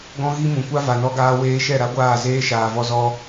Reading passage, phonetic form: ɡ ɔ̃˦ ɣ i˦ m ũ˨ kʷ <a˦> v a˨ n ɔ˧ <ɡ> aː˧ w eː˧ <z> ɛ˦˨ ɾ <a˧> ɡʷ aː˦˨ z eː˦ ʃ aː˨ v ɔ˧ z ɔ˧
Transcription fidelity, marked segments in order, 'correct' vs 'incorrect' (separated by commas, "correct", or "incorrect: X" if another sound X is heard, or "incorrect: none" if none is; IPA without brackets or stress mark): correct, correct, incorrect: ʃ, incorrect: a˦